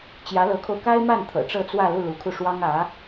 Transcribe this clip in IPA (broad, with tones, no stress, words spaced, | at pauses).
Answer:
t͡ɕjä˧˥lɤ˧˥kʰo˧ʊ̯ ka˥ɪ̯ma˥˩n t̪ʰɤ̰˨˩ʈ͡ʂɤ˥˧t͡swä˥˧lu˥˩ lu˧˥kʰu˧ʂwɑ˥ŋ ä˧˥